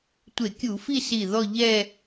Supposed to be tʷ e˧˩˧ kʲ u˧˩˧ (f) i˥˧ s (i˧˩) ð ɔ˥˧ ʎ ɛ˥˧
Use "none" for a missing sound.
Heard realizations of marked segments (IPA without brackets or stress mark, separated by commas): f, i˧˩